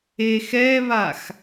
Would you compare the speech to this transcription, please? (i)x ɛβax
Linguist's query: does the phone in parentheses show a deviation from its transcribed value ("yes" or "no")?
yes